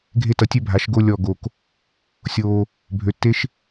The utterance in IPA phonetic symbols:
ɡʱ e˦ t ʌ˧ tʲ ø˦ bʱ a˨˦ ʃ ɡ o˦ lʲ ɔ˦˨ ɡ o˧ k | sʲ oː˧ | bʱ ø˨˦ tː e˦ ʃ

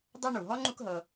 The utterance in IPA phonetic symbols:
dˤ ɛ˦ ɳ u˩ ɦ ɔ˥ ŋ͡ǃ u˦ k ɦ ɤ˨

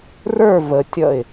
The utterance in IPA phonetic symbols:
r ə˞ v ə tʲ ʌ ɪ̯

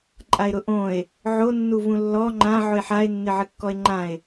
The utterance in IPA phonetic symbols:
ǃʼ a e̯ ɾ ʊ ʔ õ e̯ | ʕ o nː u v ũ lː ɔ ŋ͡ǃ ã ʕ ʊ e̯ ħ a e̯ nː ɪ ʕ ɪ kː ɔ e̯ ŋ͡ǃ ã e̯

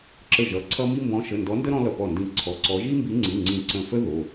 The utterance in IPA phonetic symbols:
ǁ ə˧˩ ʒ ʌ˩˧˩ ǀʰ ʌ˦ m i˦ m b ɔ̃˨˦ ʃ ə˩˧˩ n d ɔ˨˦ n d ə˦ ɾ ɔ̃˦ l ʌ˧˩ p ɔ˧˩ n d ĩ˧˩ ǀʰ ɔ˩˧˩ ǀ ɔ˨˦ ʒ i˦ m b i˨˦ ŋ͡ǀ ĩ˩˧˩ ŋ͡ǀ ĩ˧˩ ǀ ə̃˧˩ f ə˦ ð o˩˧˩

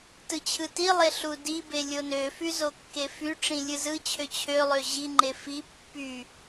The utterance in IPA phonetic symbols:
t ɯ t͡ɕʰ ɯ t i lˠ e ɬ u d i b e lʲ o n ø f y z o kː e f y ʈ͡ʂ ĩ lʲ ɯ z ɯ t͡ɕʰ ø t͡ɕʰ ø lˠ ø ʑ i ŋ͡ǃ e f i pː y

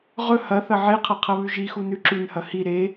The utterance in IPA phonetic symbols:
ʁ ɵ h ɐ θ ɐ ʕ e qʰ ɐ qʰ ɐ β ʉ ʒ i x u n ʉ ǁ ʉ n h ɐ h i ɾ e

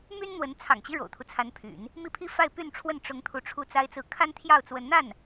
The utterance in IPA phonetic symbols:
m y˥ n n̪ w ə˧˥ n t͡sʰ ɑ̰˨˩ ŋ t͡ɕ i˦ ɻ o̰˨˩ ʊ̯ t̪ʰ u˦ t͡sʰ a˧˥ n pʰ y̰˨˩˦ n | m i˥˩ pʰ i˥ f a˥˧ ɪ̯ p y˥˧ n ʈ͡ʂʰ w ə˥˩ n ʈ͡ʂ ʊ˥ ŋ t̪ʰ u˥˧ ʈ͡ʂʰ u˥˩ t͡s a˥ ɪ̯ t͡s ɹ̩˥˩ kʰ a˥ n t̪ʰ j ɑ˥˩ ʊ̯ t͡s w ə˧˥ n n̪ a˥˩ n

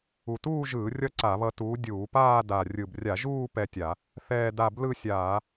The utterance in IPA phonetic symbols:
u˨˩ t uː˥˧ ʒ ɯː˧˩˧ rʲ ʌ˥˧ ǀ a˧˩˧ β ʌ˧ t uː˨˥ dʲ uː˧˩˧ p aː˥˧ d a˨˩ rʲ ɯ˨˩ b rʲ a˧˩˧ ʒ uː˥˧ p ɛ˥˧ tʲ a˧˩˧ | θ ɛː˥˧ d a˥˧ b l ɯ˥˧ sʲ aː˧˩˧

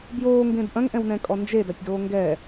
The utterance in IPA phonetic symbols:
b j oː ŋ ɡ ẽ d ʔ ɐ̃ ŋ ʔ ɛ̃ w n ɛ̃ kʼ ɔ n d͡ʒ e d a tʲ d oː ŋ ɡ ɛ

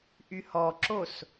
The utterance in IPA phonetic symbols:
ʔ y h ɔ ǁ o s

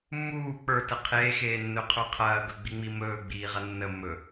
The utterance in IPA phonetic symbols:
mː uː k͡p ə˞ t ə qʰ eː x eː nː ɵ qʰ ə˞ qʰ ɐː ɡ ɵ ɡ͡b i ŋ͡m i m ɵː ɡ͡b iː ʁ ɐ nː ə mː ɵ

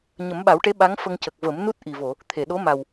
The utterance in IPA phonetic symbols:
ɲ ə˨˩˦ m ɓ a˨˩˦ w ʈ e˧˥ ɓ a˧˥ ŋ f ə˧ ŋ c ə˨˩ k̚ v ə˨˩˦ m n u˦˥ t̚ ʔ i˨˩ v o˨˩˨ | t̪ʰ e˨˩˨ ɗ o˧˥ m a˨˩ w

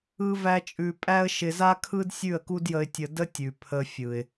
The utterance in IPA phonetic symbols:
ɯ˦ v æ˦ t͡ʃʼ ʉ˧ pʼ æ˦ ə̯ ʃ ɪ˧ z a˦ kʰ ɯ˦ d sʲ ʉ˦˨ ə̯ k u˦ d j ə˧ ɪ̯ tʲ ə˧ d ə˦ tʲ ʉ˨ pʰ ə˧ fʲ ɯ˨ ɪ̯

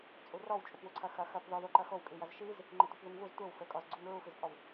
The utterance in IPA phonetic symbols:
t͡sʼ u r ɔ w t͡ʃʼ u p w u ǀʰ ɐ x ɐ x ɐ p ð ɔ ð o ǃ ɐ x o w kʼ i j ɐ z ʃ i z | ŋ͡ǃ ɘ tʷ ɐ p ð u ŋ v u z tʷ ɘ w f ɘ kʼ ɔ z ɡ͡ǀ u ŋ ɹ u f i z pʼ ɔ w

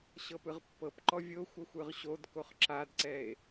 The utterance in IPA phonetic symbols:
ɕ ɤ p ɯ ʁ pː ɤ p ǃ ɔ vʲ o xʷ ʌ xʷ ɯ ʁ ɕ o d k o χ ǁ a d ǀ ɛ e̯

